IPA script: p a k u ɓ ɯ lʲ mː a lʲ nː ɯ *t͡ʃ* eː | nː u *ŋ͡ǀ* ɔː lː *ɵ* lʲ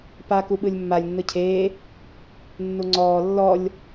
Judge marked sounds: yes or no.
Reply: no, yes, no

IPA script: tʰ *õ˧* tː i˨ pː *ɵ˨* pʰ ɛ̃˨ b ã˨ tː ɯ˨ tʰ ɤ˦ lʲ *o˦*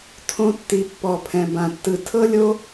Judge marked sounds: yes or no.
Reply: yes, no, yes

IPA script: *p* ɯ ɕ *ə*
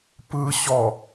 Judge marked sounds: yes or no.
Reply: yes, no

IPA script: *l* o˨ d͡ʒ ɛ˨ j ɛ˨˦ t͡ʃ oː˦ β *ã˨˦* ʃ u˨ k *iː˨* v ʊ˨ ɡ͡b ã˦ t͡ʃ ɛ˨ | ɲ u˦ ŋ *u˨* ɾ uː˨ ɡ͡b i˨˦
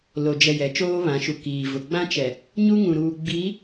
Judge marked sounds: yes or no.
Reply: yes, yes, yes, no

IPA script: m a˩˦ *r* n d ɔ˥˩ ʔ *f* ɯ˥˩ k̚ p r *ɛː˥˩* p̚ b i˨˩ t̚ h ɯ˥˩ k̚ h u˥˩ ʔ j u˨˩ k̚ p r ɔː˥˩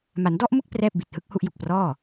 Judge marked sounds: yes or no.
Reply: no, no, yes

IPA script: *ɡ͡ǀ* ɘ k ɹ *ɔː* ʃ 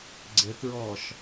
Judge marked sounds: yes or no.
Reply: yes, yes

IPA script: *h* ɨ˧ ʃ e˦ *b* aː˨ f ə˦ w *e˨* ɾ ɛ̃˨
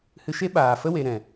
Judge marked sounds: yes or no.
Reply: yes, no, yes

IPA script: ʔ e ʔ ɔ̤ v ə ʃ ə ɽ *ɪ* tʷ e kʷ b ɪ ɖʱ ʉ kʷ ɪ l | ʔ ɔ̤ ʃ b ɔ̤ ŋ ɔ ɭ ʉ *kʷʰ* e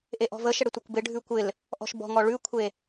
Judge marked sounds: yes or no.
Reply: yes, yes

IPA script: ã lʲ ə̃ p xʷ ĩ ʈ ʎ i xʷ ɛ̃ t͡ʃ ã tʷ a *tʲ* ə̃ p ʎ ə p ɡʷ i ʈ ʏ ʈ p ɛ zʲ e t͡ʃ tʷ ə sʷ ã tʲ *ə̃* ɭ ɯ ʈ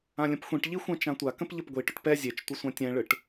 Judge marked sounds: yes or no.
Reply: no, no

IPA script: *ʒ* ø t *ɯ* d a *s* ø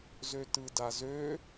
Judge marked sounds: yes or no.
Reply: no, yes, no

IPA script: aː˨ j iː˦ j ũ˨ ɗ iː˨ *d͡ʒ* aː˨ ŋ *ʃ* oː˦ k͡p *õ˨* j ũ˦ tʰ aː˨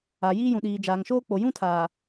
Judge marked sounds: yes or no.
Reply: yes, yes, no

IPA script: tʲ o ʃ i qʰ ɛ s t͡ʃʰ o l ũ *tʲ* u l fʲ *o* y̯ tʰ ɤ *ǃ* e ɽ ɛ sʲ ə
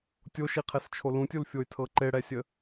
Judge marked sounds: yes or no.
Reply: yes, yes, yes

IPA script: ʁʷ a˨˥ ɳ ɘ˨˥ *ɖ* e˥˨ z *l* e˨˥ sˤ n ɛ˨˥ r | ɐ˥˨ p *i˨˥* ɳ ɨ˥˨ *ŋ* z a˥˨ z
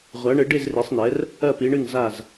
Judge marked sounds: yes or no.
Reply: yes, no, yes, yes

